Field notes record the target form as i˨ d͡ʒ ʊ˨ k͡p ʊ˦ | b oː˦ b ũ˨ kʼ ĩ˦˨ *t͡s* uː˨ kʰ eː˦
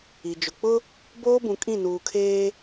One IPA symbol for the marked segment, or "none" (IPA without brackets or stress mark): n